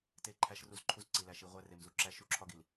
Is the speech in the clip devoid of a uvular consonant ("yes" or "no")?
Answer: no